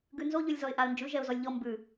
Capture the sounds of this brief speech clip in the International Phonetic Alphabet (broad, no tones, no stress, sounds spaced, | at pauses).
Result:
ɡ ʉ n z o ʎ ʉ lʲ z ɔ ɪ̯ ʔ a ə̯ n d͡ʒ ʉ ʒ ɛ ʊ̯ z ɔ lʲ ʎ ɔ m b ʉ